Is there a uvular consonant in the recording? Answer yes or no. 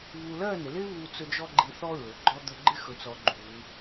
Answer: no